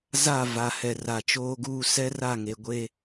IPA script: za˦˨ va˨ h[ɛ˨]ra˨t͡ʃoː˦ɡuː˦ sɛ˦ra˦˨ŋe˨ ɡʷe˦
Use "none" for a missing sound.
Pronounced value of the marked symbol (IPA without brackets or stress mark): ɛ˨